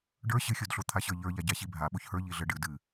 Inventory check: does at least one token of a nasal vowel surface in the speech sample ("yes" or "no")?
no